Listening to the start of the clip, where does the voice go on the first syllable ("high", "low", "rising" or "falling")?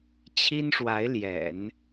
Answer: high